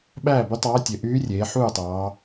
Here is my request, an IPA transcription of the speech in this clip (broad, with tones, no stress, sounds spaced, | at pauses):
ɓ æː˥˨ b y˧˥ tˤ ɑː˧˥ tʲ ø˩˧ ʔ yː˧˥ rʲ eː˩˧ ħ uː˥˨ tˤ ɑː˩˧